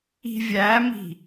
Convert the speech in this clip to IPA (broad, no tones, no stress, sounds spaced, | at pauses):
i̤ vʲ æ m i̤